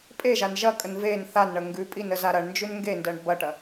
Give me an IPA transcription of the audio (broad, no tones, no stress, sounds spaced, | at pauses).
pʼ e ʒ a n ʒ ɐ kʼ ə n v e n θ a n ɳ ə ŋ ɡ ʉ pʼ i n ə z a ɾ ɐ ɳ n d͡ʒ ʉ n ŋ ɡ e n d ɜ ɳ b ɐ ʈ ɐ